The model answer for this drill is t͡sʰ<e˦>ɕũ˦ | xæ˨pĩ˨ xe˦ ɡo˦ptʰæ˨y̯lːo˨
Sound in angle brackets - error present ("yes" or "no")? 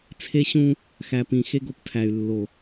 no